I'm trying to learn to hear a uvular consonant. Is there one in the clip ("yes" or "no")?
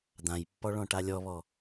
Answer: no